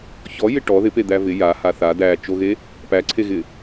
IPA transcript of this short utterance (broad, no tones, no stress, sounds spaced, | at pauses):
ç ɔ j ɪ ʈ ɔ ð ɪ p e d̪ æ v ɪ j a h a θ a d æ t͡ʃ o ɣ e | p æ ǀʰ e ɣ ɪ